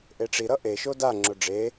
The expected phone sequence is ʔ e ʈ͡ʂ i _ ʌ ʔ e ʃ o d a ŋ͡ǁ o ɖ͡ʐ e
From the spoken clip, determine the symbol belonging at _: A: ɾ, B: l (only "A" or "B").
A